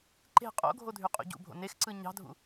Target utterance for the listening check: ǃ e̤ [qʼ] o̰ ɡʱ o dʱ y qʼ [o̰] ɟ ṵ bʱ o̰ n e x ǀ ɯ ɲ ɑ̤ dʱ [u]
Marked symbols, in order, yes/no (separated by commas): yes, no, no